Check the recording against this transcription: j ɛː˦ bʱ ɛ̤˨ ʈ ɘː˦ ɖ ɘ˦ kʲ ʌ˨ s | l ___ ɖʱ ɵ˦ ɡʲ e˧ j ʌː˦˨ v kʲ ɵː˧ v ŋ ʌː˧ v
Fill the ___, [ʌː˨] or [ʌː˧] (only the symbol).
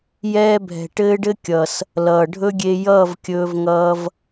ʌː˨